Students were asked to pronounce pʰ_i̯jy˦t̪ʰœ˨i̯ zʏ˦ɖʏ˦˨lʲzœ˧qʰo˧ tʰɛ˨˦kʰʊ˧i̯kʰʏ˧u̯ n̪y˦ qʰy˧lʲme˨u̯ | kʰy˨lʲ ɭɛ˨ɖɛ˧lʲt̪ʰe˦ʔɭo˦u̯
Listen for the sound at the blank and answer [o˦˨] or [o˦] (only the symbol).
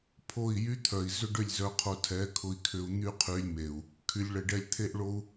o˦˨